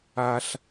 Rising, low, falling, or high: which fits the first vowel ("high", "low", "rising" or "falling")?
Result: low